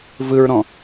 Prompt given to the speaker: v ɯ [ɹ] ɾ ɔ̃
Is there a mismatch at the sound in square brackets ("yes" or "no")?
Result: no